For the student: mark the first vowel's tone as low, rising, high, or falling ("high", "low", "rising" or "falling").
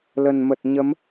low